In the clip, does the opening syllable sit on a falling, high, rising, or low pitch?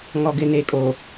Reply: low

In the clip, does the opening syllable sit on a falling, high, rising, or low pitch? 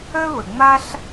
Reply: high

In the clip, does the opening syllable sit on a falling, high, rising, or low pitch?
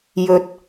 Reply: low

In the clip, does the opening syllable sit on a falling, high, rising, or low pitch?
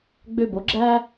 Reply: high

